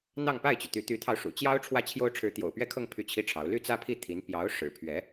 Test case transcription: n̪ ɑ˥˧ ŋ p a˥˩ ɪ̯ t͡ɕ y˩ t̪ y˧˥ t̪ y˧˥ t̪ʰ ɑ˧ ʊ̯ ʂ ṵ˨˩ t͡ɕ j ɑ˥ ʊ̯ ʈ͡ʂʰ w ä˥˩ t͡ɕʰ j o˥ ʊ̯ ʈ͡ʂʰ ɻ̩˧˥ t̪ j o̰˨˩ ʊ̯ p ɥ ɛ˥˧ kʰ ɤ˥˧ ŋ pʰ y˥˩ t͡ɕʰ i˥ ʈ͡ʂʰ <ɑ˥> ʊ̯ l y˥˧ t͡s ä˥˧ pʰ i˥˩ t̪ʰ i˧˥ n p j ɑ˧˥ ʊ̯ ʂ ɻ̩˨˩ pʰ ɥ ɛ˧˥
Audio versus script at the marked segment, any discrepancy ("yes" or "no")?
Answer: yes